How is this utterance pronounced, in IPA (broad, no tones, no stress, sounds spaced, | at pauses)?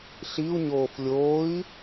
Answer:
ɬ i u̯ ɲ oː f lʲ oː i̯